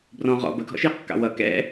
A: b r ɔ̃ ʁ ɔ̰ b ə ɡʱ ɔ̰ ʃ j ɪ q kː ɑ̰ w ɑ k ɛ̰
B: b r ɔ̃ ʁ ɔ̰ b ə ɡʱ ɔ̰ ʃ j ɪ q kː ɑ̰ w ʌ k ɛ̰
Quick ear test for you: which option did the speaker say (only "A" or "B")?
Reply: B